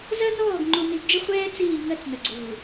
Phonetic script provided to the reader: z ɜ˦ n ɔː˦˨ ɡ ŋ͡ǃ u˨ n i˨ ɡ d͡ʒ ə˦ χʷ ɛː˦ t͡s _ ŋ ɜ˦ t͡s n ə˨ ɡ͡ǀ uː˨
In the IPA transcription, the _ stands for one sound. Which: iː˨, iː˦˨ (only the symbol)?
iː˦˨